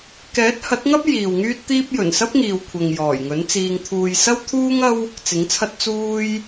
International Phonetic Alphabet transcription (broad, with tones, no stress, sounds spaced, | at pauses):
k ɛː˨˥ t̚ h ɐ˨˥ t̚ ŋ ɐ˥ p̚ j iː˨ w ŋ yː˥ t̚ t̪ iː˥ p̚ j ɵ˨˩ n s ɐ˥ p̚ ŋ iː˨ w kʷʰ ɐ˨ ŋ j ɔː˨˩ j ŋ ɵ˨˥ n t͡s iː˧ ŋ t̪ʰ uː˧ j s ɐ˥ w t̪ʰ uː˥ ŋ ɐ˥ w | t͡s ɪ˨˥ ŋ t͡sʰ ɐ˥ t̚ t͡s uː˥ j